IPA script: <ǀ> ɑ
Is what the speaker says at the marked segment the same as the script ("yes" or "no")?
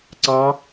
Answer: yes